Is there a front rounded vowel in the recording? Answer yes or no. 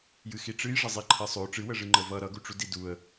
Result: no